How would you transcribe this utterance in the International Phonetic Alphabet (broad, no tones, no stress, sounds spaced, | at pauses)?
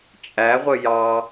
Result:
t͡ʃʼ æ ʁʷ ə j ɑ